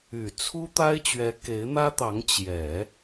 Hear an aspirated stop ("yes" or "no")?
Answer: yes